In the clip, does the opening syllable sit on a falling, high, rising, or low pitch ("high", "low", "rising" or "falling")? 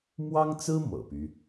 high